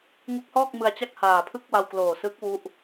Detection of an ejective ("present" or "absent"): absent